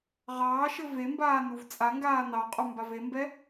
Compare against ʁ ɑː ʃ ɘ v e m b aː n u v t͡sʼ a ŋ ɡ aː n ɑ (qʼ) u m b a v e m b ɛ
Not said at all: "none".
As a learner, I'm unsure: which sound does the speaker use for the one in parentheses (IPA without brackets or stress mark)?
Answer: qʼ